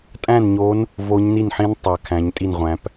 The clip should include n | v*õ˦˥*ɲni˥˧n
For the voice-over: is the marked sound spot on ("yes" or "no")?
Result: no